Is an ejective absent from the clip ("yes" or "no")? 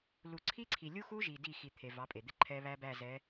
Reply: no